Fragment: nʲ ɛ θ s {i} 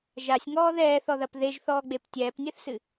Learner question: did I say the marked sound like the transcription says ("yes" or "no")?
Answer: no